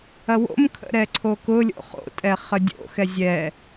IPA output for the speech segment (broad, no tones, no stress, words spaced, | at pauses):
ɐwo̰mkʰə̰ ɾɛǀʰokʊlʲo̰ χo̰tʼɛ χədʲo̰xɛ zʲɛ